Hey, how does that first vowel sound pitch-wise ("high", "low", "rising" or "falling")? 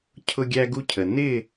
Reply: high